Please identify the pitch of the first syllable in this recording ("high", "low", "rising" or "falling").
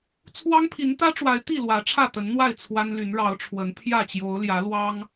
high